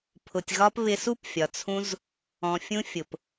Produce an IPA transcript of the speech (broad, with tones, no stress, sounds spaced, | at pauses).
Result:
pʰ ʊ˨ tʲ ɣ ɒ˧ p β ɪ˧ s u˦ p fʲ ɒ˨ t͡sʰ ũ˧ z | ɔ̃˨ fʲ ũ˧ fʲ ʊ˨ p